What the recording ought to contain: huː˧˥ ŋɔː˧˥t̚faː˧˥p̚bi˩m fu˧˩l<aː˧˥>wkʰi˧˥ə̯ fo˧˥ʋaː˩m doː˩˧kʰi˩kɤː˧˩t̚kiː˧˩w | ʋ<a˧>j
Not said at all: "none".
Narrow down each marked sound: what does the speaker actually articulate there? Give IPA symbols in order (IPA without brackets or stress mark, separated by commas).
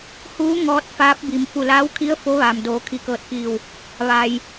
aː˧˥, a˩